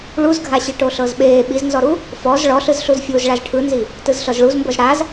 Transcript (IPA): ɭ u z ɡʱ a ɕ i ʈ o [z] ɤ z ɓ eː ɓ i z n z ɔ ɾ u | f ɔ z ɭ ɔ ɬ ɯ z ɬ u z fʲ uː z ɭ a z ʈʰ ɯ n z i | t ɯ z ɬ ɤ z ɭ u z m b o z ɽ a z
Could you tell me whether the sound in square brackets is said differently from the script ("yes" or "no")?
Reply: yes